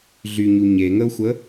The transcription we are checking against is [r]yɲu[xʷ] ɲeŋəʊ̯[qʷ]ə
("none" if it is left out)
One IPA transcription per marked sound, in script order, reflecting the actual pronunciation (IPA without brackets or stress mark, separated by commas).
ɮ, none, xʷ